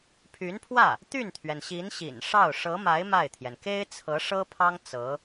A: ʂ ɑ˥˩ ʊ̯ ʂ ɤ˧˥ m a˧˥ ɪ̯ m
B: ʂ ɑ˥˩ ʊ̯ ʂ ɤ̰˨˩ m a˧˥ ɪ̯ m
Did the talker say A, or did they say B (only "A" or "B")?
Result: A